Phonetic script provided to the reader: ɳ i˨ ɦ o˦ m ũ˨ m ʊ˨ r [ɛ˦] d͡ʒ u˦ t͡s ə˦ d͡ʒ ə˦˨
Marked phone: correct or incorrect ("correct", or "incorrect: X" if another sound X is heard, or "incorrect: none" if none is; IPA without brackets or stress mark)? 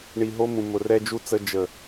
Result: correct